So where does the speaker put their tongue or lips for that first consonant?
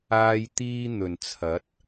palate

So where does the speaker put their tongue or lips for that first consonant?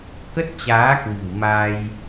velum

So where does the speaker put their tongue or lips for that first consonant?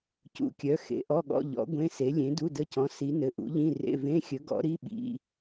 palate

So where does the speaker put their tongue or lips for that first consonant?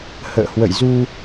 throat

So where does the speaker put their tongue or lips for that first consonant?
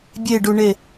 lips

